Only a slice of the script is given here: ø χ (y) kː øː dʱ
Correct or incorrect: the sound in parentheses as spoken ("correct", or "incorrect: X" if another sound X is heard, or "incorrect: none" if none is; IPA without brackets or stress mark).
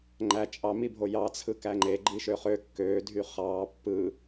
incorrect: ø